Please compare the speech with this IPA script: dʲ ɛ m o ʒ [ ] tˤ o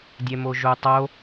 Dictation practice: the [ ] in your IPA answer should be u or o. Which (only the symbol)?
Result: u